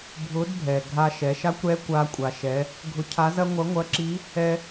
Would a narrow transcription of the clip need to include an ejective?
yes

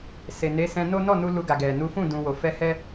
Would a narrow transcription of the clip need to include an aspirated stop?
no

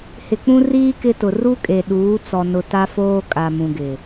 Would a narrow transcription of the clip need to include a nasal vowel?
yes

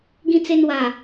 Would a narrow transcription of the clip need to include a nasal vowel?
yes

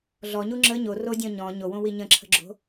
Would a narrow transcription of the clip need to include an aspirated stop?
yes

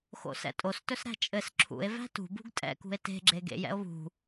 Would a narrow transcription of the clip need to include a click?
yes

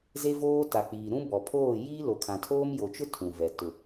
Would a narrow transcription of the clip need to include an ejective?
no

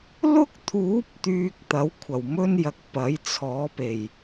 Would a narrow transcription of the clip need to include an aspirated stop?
yes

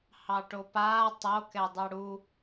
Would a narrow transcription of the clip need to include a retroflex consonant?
yes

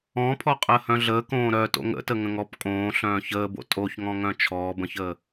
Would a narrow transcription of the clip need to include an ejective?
yes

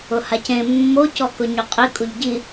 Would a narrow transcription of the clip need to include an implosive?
no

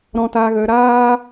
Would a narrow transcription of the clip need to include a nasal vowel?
yes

